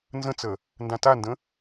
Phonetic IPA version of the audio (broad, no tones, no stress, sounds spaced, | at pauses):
n z ə̃ t͡s ə | n d ã t a n d ə̃